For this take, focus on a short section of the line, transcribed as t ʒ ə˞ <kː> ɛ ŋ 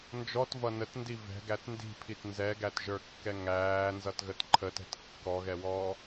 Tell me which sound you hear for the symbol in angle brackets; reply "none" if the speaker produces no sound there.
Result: kː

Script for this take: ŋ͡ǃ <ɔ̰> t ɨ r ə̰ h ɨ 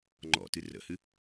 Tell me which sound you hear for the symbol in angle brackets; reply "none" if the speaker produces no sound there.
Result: ɔ̰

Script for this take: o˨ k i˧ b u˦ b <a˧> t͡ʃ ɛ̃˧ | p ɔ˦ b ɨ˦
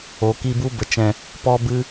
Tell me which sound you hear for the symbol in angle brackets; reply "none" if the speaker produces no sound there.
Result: ə˧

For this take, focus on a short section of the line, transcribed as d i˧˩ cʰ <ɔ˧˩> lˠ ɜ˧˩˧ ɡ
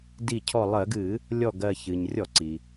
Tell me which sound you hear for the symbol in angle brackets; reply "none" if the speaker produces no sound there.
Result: ɔ˧˩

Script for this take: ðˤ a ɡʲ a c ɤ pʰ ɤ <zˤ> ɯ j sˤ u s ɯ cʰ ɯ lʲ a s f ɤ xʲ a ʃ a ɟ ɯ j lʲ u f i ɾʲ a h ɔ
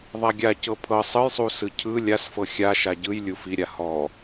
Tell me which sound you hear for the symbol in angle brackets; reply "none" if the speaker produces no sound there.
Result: sˤ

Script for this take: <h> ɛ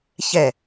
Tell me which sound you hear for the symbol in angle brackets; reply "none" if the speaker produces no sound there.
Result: ç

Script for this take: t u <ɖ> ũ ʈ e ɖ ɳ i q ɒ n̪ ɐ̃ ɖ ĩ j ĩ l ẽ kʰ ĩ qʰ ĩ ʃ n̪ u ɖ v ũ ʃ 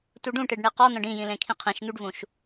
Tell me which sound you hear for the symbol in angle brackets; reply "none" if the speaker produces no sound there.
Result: ɖ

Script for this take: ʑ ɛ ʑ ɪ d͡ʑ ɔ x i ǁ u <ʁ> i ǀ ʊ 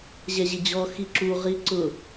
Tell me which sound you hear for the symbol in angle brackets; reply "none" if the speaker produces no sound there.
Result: ʁ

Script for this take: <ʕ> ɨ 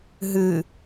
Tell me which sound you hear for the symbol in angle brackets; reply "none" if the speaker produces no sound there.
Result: ɦ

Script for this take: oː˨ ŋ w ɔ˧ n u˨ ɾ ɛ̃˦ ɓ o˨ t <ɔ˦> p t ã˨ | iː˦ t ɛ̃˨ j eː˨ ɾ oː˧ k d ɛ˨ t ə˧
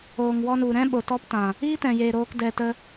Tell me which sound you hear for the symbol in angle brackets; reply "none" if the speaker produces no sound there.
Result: ɔ˦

